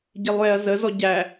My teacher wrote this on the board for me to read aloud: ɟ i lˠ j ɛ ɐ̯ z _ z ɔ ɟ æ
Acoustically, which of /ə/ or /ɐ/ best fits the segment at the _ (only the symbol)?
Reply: ə